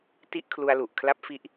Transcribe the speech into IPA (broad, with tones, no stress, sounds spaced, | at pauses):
t i˦˥ ʔ kʰ l u˧ a̯ l u˨˩ ʔ kʰ l a˦˥ p̚ f i˦˥ ʔ